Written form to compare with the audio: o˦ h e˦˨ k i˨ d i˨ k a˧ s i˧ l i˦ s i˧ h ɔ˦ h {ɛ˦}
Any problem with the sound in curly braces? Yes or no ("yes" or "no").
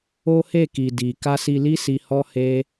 yes